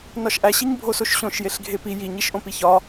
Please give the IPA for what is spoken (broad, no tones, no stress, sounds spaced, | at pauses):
n ɒ ʃ ʔ æ ɕ i ɲ bʱ o s o ʃ ɕ õ ʃ j e ɬ ɡʱ e p i j i ɲ i ʃ ʔ õ p i ç ɒ